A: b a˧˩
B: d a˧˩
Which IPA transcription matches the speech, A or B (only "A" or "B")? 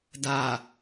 B